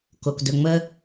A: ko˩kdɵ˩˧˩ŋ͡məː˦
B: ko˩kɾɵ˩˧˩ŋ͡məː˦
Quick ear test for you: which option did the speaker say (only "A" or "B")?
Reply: A